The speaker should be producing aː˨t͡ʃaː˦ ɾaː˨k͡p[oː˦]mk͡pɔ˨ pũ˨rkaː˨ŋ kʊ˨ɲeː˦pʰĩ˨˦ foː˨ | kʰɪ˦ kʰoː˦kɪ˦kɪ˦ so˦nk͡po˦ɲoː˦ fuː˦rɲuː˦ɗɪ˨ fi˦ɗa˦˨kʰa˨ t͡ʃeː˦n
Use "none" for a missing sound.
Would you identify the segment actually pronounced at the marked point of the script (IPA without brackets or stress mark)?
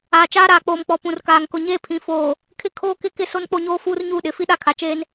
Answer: oː˨